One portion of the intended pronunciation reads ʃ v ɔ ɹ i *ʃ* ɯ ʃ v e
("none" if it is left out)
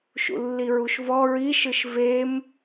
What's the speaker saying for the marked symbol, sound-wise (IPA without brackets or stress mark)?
ʃ